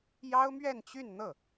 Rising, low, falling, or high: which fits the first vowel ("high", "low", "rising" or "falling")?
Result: high